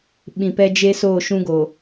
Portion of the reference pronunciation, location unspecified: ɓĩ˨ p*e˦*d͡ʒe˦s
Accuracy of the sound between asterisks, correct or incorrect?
incorrect